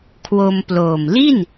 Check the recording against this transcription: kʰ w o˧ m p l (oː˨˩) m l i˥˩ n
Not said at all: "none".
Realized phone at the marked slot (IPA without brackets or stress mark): oː˨˩